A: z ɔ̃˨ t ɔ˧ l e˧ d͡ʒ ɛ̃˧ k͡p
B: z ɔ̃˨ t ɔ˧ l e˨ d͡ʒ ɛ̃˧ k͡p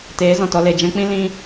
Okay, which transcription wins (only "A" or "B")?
B